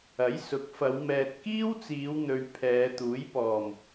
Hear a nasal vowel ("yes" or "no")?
no